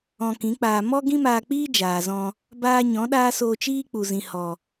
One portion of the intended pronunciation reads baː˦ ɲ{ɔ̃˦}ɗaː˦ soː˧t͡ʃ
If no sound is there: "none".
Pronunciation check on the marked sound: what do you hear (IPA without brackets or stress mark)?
ɔ̃˨˦